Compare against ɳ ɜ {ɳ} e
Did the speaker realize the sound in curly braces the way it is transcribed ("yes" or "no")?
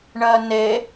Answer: no